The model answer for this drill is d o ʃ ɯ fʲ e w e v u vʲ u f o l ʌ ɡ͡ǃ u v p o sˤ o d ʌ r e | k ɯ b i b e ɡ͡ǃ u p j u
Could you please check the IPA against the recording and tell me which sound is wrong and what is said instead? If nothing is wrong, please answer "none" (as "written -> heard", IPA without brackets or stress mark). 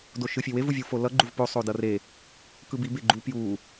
none